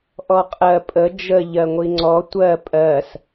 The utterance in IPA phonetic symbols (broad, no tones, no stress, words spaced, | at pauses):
ʔɔqʼɜ pʼə d͡ʒə ʎɜŋʷiŋ͡ǀɔ tʷɜ pʼɜs